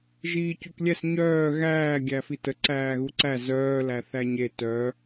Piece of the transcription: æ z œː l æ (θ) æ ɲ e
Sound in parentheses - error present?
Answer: no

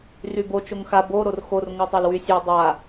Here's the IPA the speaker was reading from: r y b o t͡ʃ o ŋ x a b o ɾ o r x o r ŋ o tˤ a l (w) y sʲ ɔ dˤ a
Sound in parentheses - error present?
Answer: no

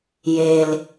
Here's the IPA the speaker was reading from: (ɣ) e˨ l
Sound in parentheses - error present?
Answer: yes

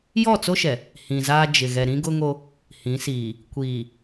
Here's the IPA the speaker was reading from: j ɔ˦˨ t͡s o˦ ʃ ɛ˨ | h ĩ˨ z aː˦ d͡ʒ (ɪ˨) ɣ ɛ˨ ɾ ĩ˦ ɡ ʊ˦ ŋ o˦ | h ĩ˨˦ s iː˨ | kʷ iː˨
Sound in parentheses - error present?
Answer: no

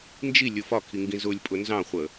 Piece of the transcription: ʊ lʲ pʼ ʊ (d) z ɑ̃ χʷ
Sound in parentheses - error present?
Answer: yes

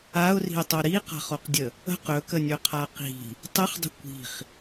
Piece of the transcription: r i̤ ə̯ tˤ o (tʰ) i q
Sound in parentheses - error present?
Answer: yes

